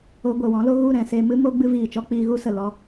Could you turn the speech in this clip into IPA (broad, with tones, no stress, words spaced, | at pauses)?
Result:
o˧ ɡʷɛ˨wɔ̃˨˦lo˧ ɣu˦˨ ɾɛ̃˨se˧mɨ˦mo˦ ɡ͡bɨ˧viː˨t͡ʃɔ˧ k͡piː˧ɣu˦ sə˨ lɔ˧